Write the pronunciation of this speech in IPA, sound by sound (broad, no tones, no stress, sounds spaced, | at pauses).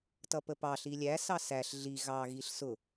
t ʌ p ə p ɑ ɬ i lʲ æ s ɑ s æ ɬ ɮ i ɣ ɑ ɣ i ɬ s ʊ